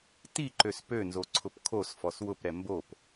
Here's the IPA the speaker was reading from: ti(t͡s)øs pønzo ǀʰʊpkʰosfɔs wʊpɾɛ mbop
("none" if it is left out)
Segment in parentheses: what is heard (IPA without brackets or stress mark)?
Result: ǃ